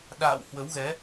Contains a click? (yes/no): no